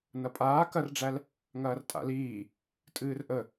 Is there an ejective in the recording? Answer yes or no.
yes